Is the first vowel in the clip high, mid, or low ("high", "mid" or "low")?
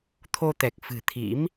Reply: mid